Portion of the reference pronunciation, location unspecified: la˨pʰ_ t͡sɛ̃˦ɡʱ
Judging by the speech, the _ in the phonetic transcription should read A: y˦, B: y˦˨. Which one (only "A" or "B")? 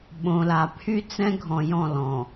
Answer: A